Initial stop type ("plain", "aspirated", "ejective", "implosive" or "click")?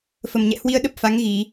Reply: implosive